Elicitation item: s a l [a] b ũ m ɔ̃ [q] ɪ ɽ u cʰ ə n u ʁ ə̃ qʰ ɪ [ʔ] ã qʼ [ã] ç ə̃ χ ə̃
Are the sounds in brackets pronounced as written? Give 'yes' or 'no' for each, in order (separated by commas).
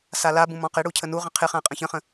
yes, yes, no, no